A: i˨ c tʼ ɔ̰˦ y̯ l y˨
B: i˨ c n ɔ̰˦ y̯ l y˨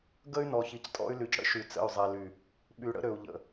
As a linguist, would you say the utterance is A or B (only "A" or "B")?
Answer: A